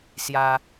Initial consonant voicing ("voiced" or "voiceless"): voiceless